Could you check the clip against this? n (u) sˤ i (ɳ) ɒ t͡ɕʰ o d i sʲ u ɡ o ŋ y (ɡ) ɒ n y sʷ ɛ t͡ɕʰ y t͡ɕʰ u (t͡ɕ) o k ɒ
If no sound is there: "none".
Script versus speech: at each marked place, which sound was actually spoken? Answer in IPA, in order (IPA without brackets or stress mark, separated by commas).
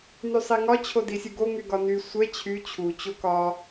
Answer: y, ŋ, ɡ, t͡ɕ